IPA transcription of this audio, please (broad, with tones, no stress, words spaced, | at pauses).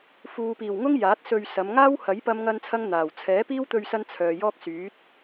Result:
fuː˨piː˨˩wŋʊ˥ŋ jaː˨˥t̚sɵ˧ɥsɐ˨˧m ŋaː˥whɐ˨˥j pɐ˥mŋɐ˥nt͡sʰɐ˥ŋ n̪aː˨˩w t͡sʰɛː˨˥piː˥wt̪ɵ˧ɥsɐ˧n t͡sʰœː˨jɔː˥k̚syː˨˥t̚